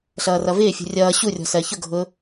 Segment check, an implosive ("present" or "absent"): absent